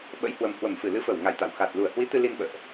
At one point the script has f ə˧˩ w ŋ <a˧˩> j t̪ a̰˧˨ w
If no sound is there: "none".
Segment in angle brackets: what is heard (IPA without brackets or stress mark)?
a˧˩